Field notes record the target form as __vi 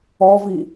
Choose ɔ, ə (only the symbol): ɔ